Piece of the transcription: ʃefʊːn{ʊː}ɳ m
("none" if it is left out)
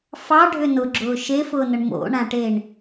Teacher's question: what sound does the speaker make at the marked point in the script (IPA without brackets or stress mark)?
ʊ